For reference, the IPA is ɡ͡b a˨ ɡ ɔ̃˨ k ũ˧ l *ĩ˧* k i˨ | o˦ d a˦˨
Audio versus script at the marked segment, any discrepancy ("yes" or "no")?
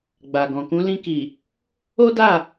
no